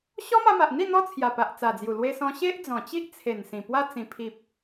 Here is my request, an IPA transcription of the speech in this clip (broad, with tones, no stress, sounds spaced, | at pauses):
ɕ ɔ˦ m a˧ m a˨ ʔ n̪ i˥˧ n̪ ɔ˦ t͡sʰ j a˨˩ p a˨ ʔ t͡s a˨˩ d͡z j u˨˩ l w e˧ s ɔ̃˧ ɕ e˦ ʔ d͡z ɔ̃˨˩ t͡ɕ i˦ ʔ t͡sʰ e˨˩ n s ĩ˨˩ p w a˧ t͡s ĩ˨˩ pʰ i˨ p̚